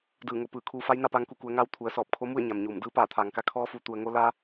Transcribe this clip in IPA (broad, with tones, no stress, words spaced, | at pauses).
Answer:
dɯː˧˩ŋo˩˧pɯː˧˩ kʰuː˧ fa˧˥jna˥˨paː˧ŋku˧˩ ku˩˧ə̯ŋaː˧w t̪ʰu˩˧ə̯sɔː˧˩p̚ kʰo˧˥mu˥˨ə̯ ɲa˩mɲuː˧˩m dɯː˧˥paː˧˩t̪ʰaː˩ŋka˧ kʰɔː˧˥fu˩˧ t̪u˩ə̯ŋo˧ la˧